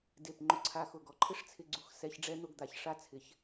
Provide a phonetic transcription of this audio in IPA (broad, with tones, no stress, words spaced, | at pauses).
de˧˩p ŋ͡ǃʊ˧ǀʰa˧xʊ˧˩ɡ ɔ˧ǃʰɪ˥ʂt͡sʰɪ˧ɡ͡ǀu˧x sɛ˧ç ɖ͡ʐɛ˥n̪ʊ˥˧ɡd̪a˩˧ç ʂa˥t͡sʰɪ˩˧ç